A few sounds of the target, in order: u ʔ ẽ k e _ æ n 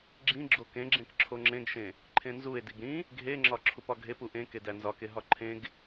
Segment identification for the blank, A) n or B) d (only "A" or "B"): B